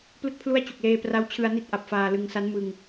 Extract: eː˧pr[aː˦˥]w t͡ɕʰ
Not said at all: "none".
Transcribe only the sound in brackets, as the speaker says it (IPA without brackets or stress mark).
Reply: a˦˥